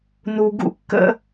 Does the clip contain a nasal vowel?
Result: no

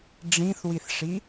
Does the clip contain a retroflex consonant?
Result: yes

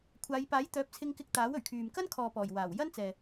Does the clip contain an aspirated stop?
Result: yes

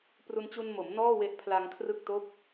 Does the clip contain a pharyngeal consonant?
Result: no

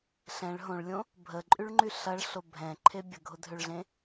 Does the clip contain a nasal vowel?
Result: yes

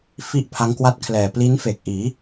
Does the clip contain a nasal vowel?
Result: no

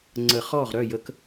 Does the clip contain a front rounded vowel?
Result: yes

